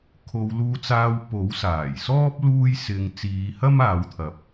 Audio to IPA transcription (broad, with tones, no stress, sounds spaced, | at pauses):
kʰ o˨˧ w l uː˧ t͡s aː˧ w p o˨˥ w s aː˨˩ j s ɔː˥ p̚ l uː˥ j s ɪ˧ ŋ t͡s iː˨˧ h ɐ˥ m aː˨˧ w t̪ʰ ɐ˨ p̚